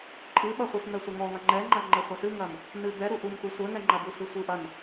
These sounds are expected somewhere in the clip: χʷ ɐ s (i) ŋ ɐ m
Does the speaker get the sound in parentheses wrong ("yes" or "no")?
yes